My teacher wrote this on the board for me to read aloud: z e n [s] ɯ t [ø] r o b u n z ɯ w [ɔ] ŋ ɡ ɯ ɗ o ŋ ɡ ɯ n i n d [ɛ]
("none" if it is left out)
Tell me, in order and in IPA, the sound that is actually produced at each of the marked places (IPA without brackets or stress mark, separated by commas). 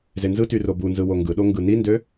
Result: z, y, o, ø